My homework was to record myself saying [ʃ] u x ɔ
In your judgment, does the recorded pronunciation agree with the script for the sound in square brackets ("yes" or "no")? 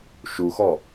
yes